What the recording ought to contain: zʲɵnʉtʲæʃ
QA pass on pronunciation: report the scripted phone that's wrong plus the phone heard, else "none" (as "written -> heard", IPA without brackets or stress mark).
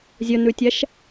none